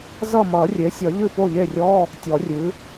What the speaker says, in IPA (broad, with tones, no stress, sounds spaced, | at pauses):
z ʌ˥˨ m ʌ˨˩˦ rʲ e˩˥ sʲ ʌ˨˩˦ ʎ ɨ˥˨ p o˥˨ ʎ e˥˨ rʲ ɔ˧˥˧ | tʲ ɔ˨˩˦ rʲ ɨ˩˥